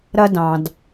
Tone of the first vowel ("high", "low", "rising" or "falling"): high